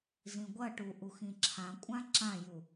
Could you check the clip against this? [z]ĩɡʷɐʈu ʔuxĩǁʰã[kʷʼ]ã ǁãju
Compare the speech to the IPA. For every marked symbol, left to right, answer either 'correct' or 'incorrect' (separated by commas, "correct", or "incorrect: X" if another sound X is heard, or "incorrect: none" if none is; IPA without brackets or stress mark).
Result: correct, correct